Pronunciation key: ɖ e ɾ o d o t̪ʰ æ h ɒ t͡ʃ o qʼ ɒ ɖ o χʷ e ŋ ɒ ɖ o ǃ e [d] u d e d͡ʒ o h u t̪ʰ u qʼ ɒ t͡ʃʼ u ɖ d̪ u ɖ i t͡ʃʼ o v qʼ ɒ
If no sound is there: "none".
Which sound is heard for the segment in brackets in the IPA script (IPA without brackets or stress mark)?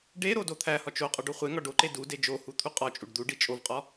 d